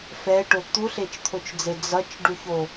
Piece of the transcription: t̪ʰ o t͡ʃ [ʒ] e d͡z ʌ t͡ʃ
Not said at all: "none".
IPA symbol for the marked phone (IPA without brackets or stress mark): d͡z